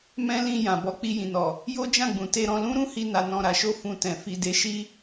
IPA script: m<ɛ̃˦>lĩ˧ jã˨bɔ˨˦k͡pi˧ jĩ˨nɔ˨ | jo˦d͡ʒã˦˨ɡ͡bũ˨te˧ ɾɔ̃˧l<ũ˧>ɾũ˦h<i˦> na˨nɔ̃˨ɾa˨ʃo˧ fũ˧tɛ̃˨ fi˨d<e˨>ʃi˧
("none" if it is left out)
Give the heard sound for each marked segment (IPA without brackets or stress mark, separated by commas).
ɛ̃˦, ũ˦, i˧, e˨˦